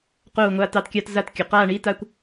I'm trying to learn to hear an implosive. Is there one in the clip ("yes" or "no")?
no